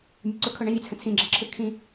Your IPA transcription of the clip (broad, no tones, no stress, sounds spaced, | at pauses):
mʲ ʊ ǀ ʊ kʰ ʊ ɳ ɛ̃ vʲ ə t͡sʰ ə̃ t͡sʰ ĩ ɡ͡ǁ ə ǁʰ ɯ kʰ ĩ